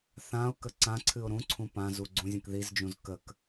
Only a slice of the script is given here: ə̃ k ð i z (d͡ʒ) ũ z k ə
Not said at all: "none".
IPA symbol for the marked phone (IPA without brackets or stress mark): d͡ʒ